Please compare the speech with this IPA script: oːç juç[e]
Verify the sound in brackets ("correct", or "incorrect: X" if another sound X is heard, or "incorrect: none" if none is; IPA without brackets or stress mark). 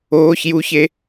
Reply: correct